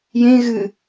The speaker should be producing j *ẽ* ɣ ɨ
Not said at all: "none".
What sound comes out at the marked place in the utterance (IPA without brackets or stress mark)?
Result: ẽ